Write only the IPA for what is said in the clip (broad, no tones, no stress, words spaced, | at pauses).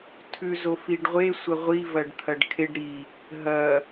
tʰʉzo fiɖʁʷe sʷɐʁʷivɐɖ t̪ʰɐɖkʰeɖ ɾi | ɦɐ